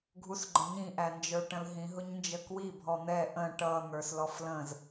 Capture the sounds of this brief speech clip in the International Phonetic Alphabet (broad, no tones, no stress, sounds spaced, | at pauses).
ɡʱ u s ɡ͡ǃ ə̃ ɲ ĩ ʔ æ n d͡ʒ ə˞ ʈ ə̃ l ɦ ĩ ɦ ʊ ɲ n d͡ʒ ə k w i bʱ ɔ n̪ ɛ ʔ ə̃ ʈ ʌ n̪ ə˞ s l ɔ f l ə̃ z